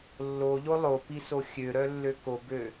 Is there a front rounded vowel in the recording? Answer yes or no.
yes